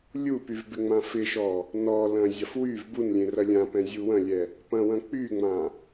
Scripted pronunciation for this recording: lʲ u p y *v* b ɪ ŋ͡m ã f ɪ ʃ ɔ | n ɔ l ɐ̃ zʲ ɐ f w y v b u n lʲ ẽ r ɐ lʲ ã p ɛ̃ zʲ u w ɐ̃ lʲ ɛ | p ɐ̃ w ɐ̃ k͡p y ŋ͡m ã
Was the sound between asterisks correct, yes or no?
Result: yes